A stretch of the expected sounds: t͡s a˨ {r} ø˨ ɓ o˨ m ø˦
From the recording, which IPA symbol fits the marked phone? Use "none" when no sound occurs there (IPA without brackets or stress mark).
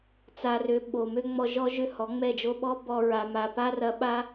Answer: r